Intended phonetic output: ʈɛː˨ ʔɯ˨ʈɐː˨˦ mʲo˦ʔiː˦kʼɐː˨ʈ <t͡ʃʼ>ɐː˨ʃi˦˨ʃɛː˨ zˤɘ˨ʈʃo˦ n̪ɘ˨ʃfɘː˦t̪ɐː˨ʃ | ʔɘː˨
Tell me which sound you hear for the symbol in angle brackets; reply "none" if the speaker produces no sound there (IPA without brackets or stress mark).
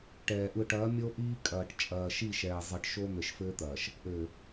t͡ʃʼ